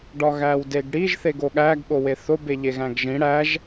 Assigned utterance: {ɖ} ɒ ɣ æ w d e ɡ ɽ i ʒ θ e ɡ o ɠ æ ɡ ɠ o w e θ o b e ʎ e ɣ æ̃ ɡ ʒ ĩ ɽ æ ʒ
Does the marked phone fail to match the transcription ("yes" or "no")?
no